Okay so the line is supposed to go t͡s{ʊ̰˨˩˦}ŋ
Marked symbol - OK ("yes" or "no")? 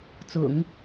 yes